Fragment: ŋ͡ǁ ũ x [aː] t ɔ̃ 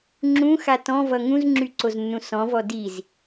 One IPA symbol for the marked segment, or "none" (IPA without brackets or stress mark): a